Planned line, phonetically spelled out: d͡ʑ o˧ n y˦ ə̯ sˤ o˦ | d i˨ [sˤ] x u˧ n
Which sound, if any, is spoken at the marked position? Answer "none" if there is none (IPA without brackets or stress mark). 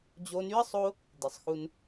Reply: sˤ